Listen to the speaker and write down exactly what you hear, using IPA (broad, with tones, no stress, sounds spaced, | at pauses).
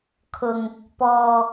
kʰ ʊ˧ ŋ | p ɔː˧